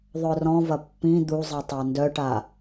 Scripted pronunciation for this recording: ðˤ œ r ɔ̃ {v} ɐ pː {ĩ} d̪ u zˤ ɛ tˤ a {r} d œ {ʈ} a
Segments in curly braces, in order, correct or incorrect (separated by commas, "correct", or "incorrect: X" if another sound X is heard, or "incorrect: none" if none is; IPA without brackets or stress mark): correct, correct, incorrect: n, correct